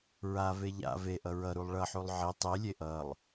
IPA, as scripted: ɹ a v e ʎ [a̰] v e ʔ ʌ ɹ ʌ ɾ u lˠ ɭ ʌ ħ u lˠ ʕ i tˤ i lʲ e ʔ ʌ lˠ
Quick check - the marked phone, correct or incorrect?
correct